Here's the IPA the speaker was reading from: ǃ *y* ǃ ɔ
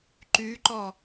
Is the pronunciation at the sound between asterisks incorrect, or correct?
correct